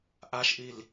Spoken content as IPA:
ʔ a ʃ ʔ i l

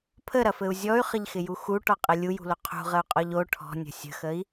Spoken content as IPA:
pʰ ə ɾ ɐ f ɘ u̯ zʲ ɔ y̯ χ ə ʎ x ɪ j u x u ʈ ɔ qʼ ɪ lʲ u j ṳ l o qʰ ṳ ʁ ə u̯ qʼ ɔ ʎ o ʈʰ ɔ̤ nʲ ə̤ sʲ ə̤ x ə i̯

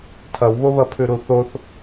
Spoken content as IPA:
tʰ ɐ w β o β ɐ pʰ ʉ ɾ u θ o θ

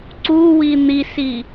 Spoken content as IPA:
ǀ u w i n̪ i s i

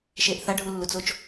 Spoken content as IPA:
ʃ e ʔ θ a ɖʱ u lː u t͡s o t͡ʃ

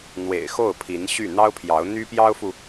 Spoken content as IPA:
n̪ w ḛ˨˩ ɪ̯ x o˥˩ ʊ̯ pʰ i˧˥ n ɕ y˥˩ n̪ ɑ˥ ʊ̯ pʰ j ɑ˧˥ ʊ̯ n̪ y˥ p j ɑ˥ ʊ̯ f u˨

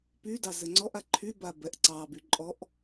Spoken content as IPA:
p y d ɑ z ɘ ŋ͡ǀ ɔ ʔ a ǃʰ y b a b ɛ ʔ ǀ ɑ b y ǃʼ ɔ ʔ

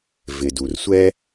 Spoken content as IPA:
v ɪ˩ d u˩ r sʷ ɛ˥

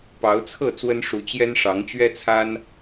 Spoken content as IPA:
p ɑ˨˦ ʊ̯ t͡sʰ ɤ˥˨ t͡s w ə˦ n ʂ u˨˦ t͡ɕ j ɛ˦ n ʂ ɑ˨˦ ŋ t͡ɕ ɥ ɛ˦ t͡sʰ a˦ n

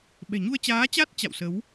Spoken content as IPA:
ɓ ɛ̤˨˩ ɲ u˧ ə̯ t͡ɕ aː˨˦ t͡ɕ a˦˥ t̚ t͡ɕ a̰˧˨ w s ə˨˦ w

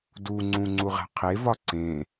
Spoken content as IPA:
d u ŋ͡ǀ ũ ŋ͡ǀ u ʁ æ̤ qʰ e v ɒ ǀ ẽ

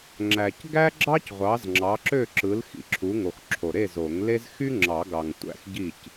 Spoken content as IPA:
ŋ͡ǁ æ˨ c ɡ æ˥ ɡ͡ǁ ɑ˥ c ʁʷ ɑ˨˥ z ŋ͡ǁ ɑ˨˥ ǁ ø˥˨ ǁ ɯ˨˥ l x ḭ˨ ǁʰ u˨˥ ŋ o˨ x ǁʰ o˨ ɾ e˥˨ z o˨˩˦ ŋ l e˥ z x y˥ ŋ͡ǁ ɑ˨˩˦ ɡ ɑ˨ ŋ tʷ æ̰˥˨ x ɟ i˥˨ c

